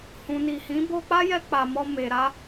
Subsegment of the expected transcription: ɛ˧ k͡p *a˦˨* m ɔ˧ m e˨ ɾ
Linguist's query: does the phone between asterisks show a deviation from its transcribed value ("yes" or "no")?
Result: yes